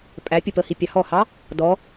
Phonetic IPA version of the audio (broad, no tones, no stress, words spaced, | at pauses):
pʼæ pʲəpəhi pʲɑhɔhɑ | dɔ